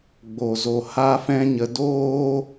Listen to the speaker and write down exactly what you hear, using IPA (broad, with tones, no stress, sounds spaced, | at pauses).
ɡ͡b o˨ z o˨ h a˦ f ɛ̃˦ ɲ ə˧ d oː˦